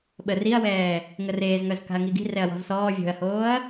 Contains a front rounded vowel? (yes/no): yes